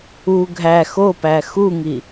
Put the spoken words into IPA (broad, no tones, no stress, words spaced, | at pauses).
u ɡʱæ xopæ xuŋi